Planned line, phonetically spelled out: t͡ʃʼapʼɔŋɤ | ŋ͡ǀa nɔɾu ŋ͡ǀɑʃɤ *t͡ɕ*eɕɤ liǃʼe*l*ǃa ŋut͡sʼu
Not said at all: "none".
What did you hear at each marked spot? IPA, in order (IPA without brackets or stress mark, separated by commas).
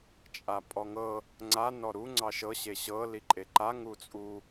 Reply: ɕ, none